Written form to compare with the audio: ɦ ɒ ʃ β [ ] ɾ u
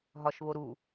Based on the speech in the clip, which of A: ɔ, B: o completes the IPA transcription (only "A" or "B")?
B